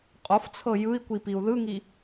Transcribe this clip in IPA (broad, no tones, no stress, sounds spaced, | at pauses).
qʼ o f t͡sʰ ɤ j ɯ i̯ kʷ i p i u̯ ð ɯ ŋ i